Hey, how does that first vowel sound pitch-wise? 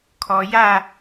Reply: low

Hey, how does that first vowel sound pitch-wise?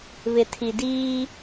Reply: low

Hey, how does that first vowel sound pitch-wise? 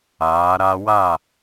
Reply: rising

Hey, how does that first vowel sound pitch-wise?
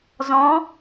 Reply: rising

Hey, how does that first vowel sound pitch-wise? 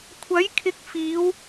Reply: rising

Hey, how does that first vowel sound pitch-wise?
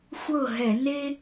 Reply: falling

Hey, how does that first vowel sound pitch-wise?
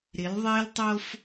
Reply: rising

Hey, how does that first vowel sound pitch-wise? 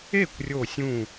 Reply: falling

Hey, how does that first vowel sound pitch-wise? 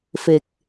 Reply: low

